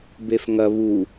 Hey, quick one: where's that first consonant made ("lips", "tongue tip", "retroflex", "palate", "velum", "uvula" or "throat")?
lips